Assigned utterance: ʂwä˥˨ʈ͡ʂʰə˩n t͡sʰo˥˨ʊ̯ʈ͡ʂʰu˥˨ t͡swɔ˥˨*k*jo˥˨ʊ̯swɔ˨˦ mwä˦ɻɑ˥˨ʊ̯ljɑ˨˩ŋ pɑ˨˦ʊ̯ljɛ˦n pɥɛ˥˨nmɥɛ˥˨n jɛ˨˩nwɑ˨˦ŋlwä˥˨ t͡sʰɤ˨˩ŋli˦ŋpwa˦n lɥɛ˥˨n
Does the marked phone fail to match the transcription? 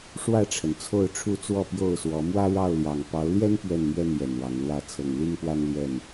yes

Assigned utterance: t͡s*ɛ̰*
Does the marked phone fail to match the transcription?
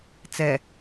yes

